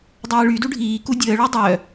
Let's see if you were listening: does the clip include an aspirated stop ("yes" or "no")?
no